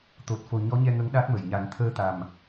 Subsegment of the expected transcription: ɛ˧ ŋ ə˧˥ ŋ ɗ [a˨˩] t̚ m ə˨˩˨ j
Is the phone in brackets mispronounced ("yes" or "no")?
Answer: yes